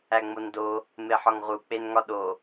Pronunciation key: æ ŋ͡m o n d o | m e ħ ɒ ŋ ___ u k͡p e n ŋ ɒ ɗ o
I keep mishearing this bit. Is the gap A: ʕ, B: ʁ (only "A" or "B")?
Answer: B